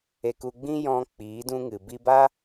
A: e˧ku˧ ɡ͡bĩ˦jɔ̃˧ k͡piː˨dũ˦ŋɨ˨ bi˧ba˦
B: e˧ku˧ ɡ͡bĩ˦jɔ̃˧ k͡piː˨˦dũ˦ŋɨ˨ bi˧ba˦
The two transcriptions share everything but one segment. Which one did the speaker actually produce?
B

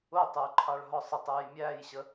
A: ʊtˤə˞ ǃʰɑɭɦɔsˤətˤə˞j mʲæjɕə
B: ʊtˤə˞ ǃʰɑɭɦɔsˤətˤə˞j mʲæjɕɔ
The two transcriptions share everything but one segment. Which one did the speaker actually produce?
A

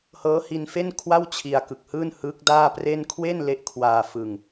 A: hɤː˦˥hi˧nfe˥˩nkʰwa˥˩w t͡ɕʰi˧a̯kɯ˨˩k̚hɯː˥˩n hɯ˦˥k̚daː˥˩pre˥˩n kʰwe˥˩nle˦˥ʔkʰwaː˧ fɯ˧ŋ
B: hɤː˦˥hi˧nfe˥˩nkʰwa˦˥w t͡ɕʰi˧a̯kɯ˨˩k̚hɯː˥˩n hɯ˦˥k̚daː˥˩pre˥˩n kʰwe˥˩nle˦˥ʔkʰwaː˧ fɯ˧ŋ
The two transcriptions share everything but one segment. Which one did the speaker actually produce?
A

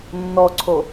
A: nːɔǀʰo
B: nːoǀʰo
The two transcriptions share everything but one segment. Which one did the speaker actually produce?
A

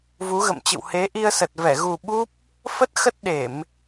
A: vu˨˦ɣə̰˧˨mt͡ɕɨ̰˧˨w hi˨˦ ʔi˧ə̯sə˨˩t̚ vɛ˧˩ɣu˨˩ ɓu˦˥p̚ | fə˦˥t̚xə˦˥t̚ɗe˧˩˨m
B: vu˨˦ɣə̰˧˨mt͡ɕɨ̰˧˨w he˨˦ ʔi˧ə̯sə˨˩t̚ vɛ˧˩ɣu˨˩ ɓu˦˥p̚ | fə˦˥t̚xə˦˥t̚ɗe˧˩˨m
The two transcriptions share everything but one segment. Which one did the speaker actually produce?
B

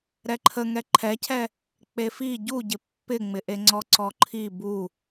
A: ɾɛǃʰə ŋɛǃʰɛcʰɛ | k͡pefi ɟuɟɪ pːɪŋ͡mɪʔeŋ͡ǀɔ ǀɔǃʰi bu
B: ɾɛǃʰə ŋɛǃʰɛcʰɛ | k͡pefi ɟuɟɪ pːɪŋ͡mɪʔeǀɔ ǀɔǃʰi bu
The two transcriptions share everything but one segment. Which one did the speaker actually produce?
A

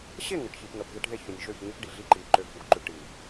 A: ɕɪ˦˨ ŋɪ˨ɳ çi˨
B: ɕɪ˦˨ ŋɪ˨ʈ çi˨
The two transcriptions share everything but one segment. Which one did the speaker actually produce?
B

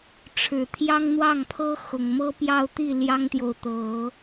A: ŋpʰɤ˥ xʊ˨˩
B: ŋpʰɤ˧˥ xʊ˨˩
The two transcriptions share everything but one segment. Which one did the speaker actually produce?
A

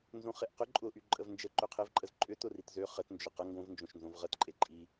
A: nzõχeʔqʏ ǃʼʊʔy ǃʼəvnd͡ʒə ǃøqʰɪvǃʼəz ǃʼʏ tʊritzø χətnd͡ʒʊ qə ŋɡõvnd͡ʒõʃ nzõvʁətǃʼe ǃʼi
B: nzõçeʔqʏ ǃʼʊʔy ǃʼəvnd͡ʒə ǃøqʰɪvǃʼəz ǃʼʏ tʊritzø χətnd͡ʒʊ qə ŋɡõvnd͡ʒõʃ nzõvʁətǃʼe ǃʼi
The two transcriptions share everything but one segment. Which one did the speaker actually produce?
A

